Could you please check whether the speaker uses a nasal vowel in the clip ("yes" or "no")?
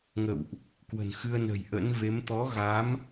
no